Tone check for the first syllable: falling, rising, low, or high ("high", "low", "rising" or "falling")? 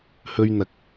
high